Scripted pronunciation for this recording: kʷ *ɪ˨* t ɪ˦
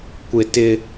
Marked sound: correct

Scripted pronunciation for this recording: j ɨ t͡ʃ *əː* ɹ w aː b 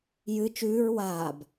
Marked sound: incorrect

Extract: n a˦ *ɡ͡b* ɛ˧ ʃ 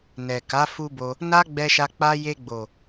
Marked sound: correct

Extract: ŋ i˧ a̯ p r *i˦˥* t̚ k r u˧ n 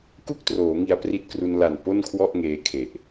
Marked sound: correct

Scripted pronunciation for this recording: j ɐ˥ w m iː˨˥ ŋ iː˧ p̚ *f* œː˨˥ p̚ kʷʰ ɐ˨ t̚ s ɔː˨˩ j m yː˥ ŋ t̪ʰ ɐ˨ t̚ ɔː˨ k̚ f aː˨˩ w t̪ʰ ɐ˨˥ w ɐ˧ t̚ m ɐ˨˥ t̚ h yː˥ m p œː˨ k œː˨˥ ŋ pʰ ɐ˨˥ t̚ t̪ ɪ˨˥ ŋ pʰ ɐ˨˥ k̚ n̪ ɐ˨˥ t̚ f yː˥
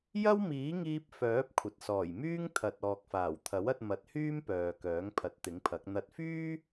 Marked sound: correct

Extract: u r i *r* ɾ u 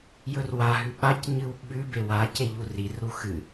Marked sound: correct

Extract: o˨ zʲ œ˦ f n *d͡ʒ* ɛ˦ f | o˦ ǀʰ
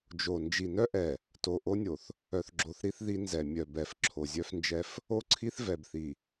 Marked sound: correct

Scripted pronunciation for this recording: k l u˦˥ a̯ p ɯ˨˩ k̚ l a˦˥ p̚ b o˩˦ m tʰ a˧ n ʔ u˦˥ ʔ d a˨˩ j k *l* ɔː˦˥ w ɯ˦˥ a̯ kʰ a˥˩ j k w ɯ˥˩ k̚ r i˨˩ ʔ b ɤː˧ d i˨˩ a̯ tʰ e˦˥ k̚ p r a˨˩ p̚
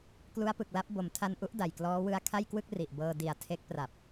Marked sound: correct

